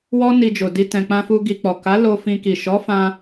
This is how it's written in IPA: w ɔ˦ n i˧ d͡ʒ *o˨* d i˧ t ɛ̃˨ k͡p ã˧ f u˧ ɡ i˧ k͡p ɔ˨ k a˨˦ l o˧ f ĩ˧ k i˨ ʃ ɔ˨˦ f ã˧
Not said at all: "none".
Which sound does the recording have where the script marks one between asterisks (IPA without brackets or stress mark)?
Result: o˨